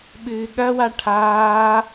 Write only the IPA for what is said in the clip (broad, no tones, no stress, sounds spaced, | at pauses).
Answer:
ɓ ɨː ɠ ɐ w a ʈʰ aː